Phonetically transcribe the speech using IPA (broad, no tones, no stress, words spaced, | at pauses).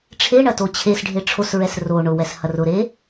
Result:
ʈ͡ʂʰeɳɐ tot͡ɕʰesɖʱe ʈ͡ʂʰosɹɛs ro ɳʊwɛs hɐrʊɾe